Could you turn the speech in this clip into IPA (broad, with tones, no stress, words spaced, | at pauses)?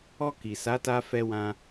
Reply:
ɔ˧ki˨ sa˨˦ta˧fɛ˧wã˧